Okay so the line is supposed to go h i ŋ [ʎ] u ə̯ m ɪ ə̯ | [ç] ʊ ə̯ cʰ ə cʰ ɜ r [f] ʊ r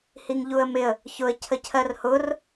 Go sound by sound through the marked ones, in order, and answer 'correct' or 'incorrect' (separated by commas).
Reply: correct, correct, incorrect